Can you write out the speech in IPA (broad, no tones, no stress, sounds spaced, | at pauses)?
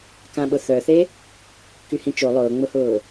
k ã ɓ ʊ θ œ θ e | k y h ĩ t͡ʃ o lˠ ʊː ŋ͡m ʊ h ʊː